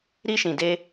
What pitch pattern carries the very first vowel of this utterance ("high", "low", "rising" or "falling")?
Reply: high